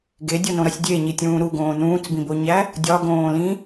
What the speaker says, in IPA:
ɡ e dʲ o n õ ɾ ɒ sʲ dʲ e ɲ i tʲ ũː ɾ u ɡ õː n ũː t͡s b ĩ b o ɲ æ | dʲ ɒ ɡ õː l ĩ

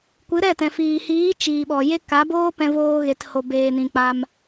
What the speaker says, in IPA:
kʷ ɨ˨˦ ɾ ɛ˦˨ t ɛ̃˨ f iː˨ h iː˨˦ t͡ʃ iː˨ ɓ ɔ˨ j e˦ k a˨˦ b oː˦ p ɛ̃˧ v oː˧ ɣ e˨ t h o˨ b eː˨ n ĩ˨ k͡p a˧ m

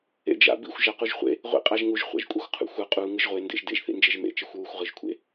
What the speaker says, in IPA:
ḛ d͡ʒ a̰ b ḭ xʷ ʒ a q u ʒ χʷ ḛ | ʁʷ ḭ qʼ a ʒ ŋ u ʒ χʷ a̰ ʒ kʷʼ ʌ xʷ qʰ ṵ xʷ ʌ qʼ u ŋ ɯ ʒ ʁʷ e n d ḛ ʒ d ḛ ʒ θ ḭ n d͡ʒ e ʒ m ḛ t͡ʃ e xʷ w u xʷ ʁ ɯ ʒ kʷʰ ḛ

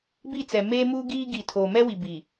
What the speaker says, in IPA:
b i˦˨ t͡s ɛ˨ m eː˦ m uː˦ ɡ iː˦ ɡ i˨ tʰ oː˨ m ɛ˦ w i˨ b i˨

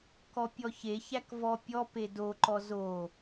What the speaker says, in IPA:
k ɔ pʲ ɔ ç e ç æ k v ɔ pʲ ɔ p e d o ǃ ɔ z o

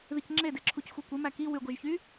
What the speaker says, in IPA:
ð i c ŋ͡ǁ e d e ǁʰ u c xʷ i kʷ e m æ k i w y ɡʷ e ʒ ç y

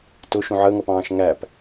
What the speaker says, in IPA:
t ʊ ʃ ũ ʕ əː ŋ ʌ p ɑ̃ː ʃ ŋ æ p

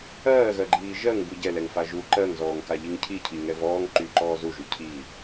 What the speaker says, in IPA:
ɜː ɣ ɜ ɡ͡ǃ iː ʒ ɜ ŋ b u ɟ ɛ l ɛ ŋ f a ʒ u ǃ ɜ ŋ z ɔː ŋ k a ʎ i ŋ cʰ i cʰ i ŋ ɛ v ɔː ŋ ǃ y ǃ ɔː z u ʒ y cʰ i

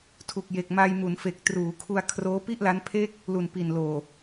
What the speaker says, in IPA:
tʰ u˨˩ k̚ j e˨˩ k̚ m a˧ j m u˩˦ n f e˨˩ k̚ t r uː˩˦ kʰ u˧ a̯ kʰ r oː˦˥ p i˥˩ ʔ l a˦˥ n pʰ e˥˩ k̚ | l u˨˩ n p i˨˩ n l oː˨˩

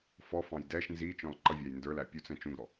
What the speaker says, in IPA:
f ɔ f ɑ̃ j d ɛ ʃ n z i t͡ʃ ɔ̃ l ǃ ʌ vʲ æ j n d ə˞ l æ pʲ u t͡s ɛ̃ t͡ʃ ũ ɡ ɾ ɔ

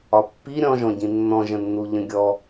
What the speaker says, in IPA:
ɒ pː i ɾʲ ɔ̃ ʒ ɔ̃ ɟ ĩ nː ɔ̃ ʒ ə̃ nː u ʎ ə̃ ɡʲ ɔ

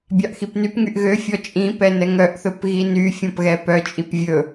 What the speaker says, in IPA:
bʲ ɑ ʔ x i p n y p ŋ y ʔ ɣ ø fʲ ɔ t͡ʃʼ ĩ p ɛ n ɛ ŋ œ ʔ θ ɵ p ɣ i n y fʲ ɔ̃ p ɣ ɛ p œ t͡ʃʼ i p vʲ ɵ

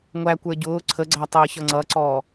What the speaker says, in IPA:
ŋʷ æ kʷ ə˞ ɟ ʊː ǀʰ ə ɡ͡ǀ æ tˤ əː ç ʌ ŋ͡ǀ ʌ ǀ ɔː

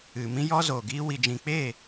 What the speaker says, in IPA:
ɨ˨ m ĩ˧ j ɔ˧ z oː˨ ɡ iː˧ w i˨ d͡ʒ ĩ˨ k͡p eː˦˨

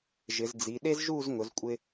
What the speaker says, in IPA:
ʒ ɪ˩˧ z d͡z i˩˧ ɗ e˥ z ʒ u˥˧ z ŋ ʊ˩˧ z kʷʼ ɪ˧

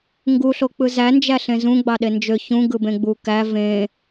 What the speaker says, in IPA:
ŋ ɡ u ɬ o k͡p ɯ z æ n d͡ʒ æ ɬ ẽ z ũ ɡ͡b ɑ ɗ e n d͡ʒ ø ç ũ ɡ ɯ b ẽ ɡ͡b u k æ v ẽ

